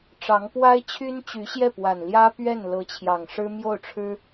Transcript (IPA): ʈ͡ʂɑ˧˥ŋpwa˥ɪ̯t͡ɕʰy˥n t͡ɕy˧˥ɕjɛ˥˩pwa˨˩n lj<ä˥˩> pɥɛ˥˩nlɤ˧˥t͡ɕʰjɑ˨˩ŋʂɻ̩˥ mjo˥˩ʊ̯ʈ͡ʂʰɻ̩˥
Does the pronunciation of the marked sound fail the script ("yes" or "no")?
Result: yes